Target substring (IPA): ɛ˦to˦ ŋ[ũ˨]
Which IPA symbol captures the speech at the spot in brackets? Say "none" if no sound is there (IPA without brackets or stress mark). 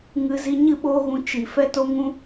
ũ˦